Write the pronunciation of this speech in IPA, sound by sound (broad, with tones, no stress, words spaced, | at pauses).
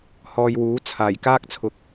hɔː˧jwuː˨˥ t͡sʰaː˨˩j kaː˥k̚t͡sʰʊ˨˥k̚